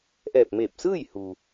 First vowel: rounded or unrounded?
unrounded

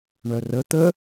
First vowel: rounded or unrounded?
rounded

